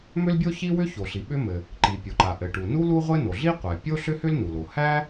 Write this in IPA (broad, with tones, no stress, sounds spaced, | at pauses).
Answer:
m ʏ˥ l bʲ o˥ ç i˥ w ʏ˥ ç o˩ ɬ i˩ ɓ ʏ˥ m ɘ˩ | ǃ i˩ pʲ o˩ ǃ a˩ ʔ ɘ˩ ʈ u˩ n u˥ l u˥ ʁʷ ɘ˥ n o˩ ɮ i˥ qʷ æ˩ pʲ o˥ ɬ ʏ˥ h ʏ˥ l n u˩ l o˩ h æ˥